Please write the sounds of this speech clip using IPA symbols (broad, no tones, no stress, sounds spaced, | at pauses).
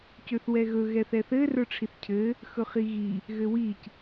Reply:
c ø θ w ɛ ɣ ɵ ɣ ɛ θ ɛ θ ɘ r ə˞ ʈ͡ʂʰ i θ cʰ ɘ | x ɵ χ i ɣ i | ɣ ɘ w i c